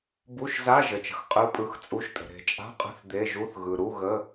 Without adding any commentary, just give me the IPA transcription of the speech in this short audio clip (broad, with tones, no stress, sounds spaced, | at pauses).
b u˧˥˧ ʃ z a˧˥˧ ʒ ə˨ t͡ʃ ə̤˨ x qʼ ɯ˧˥˧ pʼ ɯ˧˥˧ x t͡sʼ u˧˥˧ ʃ tʼ ə̤˨ ɾ e̤˨ t͡ʃʼ a̤˧˥˧ qʼ ə̤˧˥˧ θ d̪ e˧˥˧ ʒ u˧˥˧ θ ɣ ɯ˨ ɾ u˧˥˧ ɣ ə˧˥˧